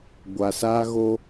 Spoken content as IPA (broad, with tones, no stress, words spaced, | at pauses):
ɡʷa˧sa˦ɣo˦